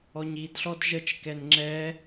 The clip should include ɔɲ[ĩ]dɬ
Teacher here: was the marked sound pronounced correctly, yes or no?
no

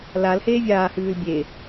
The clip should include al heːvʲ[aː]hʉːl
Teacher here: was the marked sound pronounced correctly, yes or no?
yes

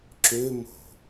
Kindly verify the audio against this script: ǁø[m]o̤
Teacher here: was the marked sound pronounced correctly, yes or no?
yes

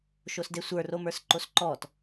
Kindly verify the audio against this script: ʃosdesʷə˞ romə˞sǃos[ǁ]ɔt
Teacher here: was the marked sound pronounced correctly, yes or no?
no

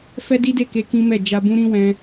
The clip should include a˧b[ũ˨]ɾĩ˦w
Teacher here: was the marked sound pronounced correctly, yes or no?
no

